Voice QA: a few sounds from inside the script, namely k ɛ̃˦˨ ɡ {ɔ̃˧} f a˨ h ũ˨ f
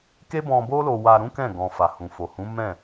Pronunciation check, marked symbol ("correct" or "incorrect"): correct